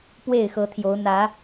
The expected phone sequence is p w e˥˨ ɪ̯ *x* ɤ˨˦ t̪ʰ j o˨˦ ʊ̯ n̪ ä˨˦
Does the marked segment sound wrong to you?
no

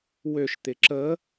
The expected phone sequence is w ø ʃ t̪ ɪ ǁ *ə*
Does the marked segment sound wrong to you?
no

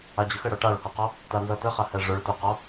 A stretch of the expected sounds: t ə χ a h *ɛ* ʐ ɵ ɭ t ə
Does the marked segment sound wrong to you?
no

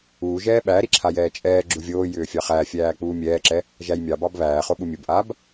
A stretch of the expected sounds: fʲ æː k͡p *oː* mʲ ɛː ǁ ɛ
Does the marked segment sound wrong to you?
yes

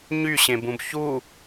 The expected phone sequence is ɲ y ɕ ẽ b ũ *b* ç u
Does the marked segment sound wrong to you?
no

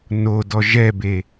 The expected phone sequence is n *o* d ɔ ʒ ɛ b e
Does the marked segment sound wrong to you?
no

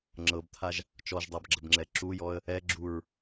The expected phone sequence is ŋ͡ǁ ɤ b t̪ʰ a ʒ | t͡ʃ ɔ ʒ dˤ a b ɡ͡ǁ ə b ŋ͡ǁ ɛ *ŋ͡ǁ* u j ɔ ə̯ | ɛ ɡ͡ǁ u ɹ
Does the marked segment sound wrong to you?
yes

